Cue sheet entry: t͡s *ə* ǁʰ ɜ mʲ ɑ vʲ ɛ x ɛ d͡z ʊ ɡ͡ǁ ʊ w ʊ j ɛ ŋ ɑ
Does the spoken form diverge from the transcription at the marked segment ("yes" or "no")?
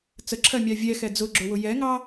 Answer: no